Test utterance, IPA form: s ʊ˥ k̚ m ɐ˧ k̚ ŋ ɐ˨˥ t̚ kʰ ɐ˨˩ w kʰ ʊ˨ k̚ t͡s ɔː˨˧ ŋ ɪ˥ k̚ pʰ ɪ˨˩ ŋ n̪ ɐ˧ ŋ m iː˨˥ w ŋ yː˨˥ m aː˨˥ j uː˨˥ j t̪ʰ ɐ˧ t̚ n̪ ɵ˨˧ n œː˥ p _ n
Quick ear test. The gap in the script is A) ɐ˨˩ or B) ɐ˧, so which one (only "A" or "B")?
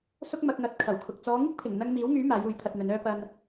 B